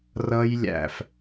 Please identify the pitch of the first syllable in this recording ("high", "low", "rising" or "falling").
high